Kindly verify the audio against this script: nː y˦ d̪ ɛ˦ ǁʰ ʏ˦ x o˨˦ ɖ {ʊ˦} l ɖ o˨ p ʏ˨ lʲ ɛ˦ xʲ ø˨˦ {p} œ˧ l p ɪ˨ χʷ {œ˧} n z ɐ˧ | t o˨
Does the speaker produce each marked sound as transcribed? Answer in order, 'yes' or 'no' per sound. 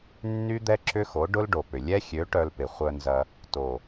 yes, no, yes

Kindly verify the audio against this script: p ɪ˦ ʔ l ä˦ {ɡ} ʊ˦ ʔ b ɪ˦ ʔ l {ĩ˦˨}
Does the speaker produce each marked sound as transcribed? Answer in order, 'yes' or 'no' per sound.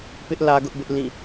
yes, yes

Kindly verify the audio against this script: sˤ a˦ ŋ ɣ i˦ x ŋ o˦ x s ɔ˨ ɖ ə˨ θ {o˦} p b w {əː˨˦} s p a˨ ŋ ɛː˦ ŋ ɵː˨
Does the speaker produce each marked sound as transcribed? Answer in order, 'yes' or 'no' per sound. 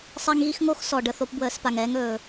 yes, yes

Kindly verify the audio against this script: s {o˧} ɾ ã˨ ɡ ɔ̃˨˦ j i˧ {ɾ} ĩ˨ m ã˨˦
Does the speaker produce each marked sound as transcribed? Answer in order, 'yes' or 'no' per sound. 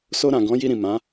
yes, yes

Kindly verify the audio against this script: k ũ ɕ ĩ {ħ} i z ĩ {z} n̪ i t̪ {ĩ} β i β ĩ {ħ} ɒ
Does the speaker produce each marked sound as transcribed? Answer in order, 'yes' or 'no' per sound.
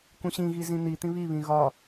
no, no, yes, no

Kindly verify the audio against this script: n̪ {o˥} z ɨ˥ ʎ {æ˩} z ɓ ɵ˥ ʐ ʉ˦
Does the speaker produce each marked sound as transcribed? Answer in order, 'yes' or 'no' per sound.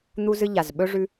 no, no

